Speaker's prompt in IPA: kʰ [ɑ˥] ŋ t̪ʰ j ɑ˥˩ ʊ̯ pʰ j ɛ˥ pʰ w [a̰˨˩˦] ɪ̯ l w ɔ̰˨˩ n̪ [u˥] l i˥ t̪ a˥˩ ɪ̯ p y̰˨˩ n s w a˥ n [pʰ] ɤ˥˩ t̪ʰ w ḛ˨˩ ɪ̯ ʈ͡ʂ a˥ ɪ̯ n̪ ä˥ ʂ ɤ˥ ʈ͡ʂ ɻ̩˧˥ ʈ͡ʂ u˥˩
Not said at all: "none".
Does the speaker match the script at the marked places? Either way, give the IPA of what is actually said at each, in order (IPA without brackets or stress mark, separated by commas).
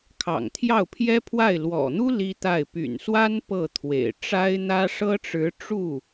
ɑ̰˨˩, a˥˩, u˥, p